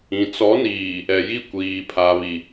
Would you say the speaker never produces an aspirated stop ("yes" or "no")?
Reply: no